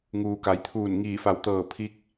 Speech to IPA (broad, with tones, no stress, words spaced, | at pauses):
ŋuː˩ka˩˧jt̪ʰuː˧˩n ŋiː˧˩fa˧˩wt̪ɤː˧˩ pʰi˧˥k̚